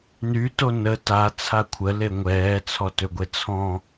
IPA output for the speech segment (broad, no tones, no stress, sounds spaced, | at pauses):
n y t o n ə t a t͡sʰ a kʷʰ ə l e ŋʷ ɛː t͡sʰ ɔ t ø ɡʷ e t͡sʰ ɔ̃